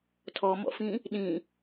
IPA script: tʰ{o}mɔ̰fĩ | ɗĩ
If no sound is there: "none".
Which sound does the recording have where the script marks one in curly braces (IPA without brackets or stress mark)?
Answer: ɔ